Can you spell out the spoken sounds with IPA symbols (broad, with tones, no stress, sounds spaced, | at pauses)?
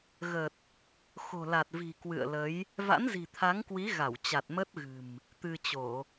ɣ ə˨˩ t̚ | x o̤˨˩ l a˨˩ t̚ v i̤˨˩ k w ɨ̰˧˨ ə̯ l ə˨˦ j | v a̰˧˥ n z i̤˨˩ t̪ʰ a˨˦ ŋ k w i˨˦ ɣ a˧˩ w t͡ɕ a˨˩ t̚ m ə˦˥ t̚ ɣ ɨ̤˨˩ m | t̪ ɨ˧ t͡ɕ o˧˩˨